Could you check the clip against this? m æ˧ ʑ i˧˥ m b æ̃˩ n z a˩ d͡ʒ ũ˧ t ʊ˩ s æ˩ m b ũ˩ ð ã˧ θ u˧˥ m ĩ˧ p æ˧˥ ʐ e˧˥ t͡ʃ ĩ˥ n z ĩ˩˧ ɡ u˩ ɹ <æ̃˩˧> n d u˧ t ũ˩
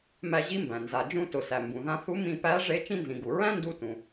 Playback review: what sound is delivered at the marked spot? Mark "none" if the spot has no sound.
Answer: æ̃˥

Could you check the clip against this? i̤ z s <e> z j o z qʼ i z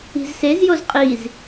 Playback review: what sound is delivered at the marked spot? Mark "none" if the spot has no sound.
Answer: e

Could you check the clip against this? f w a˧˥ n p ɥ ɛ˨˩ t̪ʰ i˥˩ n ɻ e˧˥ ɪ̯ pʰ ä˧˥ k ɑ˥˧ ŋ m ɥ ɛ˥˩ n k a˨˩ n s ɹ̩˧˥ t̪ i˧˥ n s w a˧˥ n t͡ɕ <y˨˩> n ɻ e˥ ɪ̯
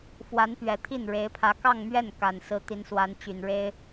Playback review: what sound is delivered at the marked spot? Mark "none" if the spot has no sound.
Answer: y˨˩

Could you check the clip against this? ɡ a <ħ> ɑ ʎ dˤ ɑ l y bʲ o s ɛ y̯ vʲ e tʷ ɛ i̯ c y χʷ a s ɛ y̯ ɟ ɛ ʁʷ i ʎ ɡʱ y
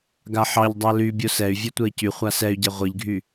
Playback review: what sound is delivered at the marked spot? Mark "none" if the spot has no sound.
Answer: ħ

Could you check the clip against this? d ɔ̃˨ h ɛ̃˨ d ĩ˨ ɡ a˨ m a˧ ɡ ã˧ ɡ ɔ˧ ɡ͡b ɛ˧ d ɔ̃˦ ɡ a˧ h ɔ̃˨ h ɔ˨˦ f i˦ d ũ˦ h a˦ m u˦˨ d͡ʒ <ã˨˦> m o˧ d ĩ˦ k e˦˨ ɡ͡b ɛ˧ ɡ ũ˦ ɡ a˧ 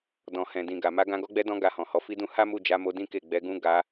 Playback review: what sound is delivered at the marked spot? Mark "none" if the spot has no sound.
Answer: a˨˦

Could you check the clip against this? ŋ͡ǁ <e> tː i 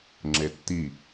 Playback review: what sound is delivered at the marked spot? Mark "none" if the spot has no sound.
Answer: e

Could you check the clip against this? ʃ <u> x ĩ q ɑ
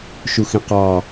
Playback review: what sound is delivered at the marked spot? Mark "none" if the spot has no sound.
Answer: u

